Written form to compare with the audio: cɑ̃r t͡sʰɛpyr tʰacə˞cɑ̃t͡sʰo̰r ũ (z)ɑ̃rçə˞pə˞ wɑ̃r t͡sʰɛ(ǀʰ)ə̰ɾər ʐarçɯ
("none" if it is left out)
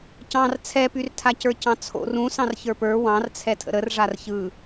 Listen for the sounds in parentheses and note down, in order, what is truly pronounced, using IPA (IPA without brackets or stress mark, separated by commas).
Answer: s, tʰ